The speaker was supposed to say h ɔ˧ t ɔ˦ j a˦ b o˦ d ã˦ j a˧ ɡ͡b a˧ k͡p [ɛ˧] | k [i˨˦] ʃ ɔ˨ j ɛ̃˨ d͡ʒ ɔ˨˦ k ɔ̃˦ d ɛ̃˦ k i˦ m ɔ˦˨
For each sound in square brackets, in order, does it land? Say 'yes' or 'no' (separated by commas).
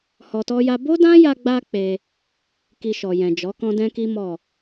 no, no